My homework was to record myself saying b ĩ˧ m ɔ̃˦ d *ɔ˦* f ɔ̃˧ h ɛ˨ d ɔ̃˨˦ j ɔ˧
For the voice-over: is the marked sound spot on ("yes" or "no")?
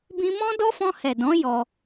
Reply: yes